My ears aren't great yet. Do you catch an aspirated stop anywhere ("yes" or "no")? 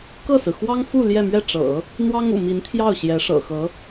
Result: yes